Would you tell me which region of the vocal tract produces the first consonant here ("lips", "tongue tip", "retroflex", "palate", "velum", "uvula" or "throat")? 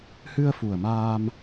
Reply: throat